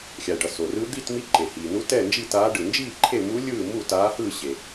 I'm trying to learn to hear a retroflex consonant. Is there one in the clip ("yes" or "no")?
yes